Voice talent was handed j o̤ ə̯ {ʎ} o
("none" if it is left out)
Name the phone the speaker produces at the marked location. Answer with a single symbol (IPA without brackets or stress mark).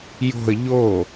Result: ʎ